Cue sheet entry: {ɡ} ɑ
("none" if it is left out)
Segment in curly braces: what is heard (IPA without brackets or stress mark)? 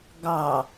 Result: ɡ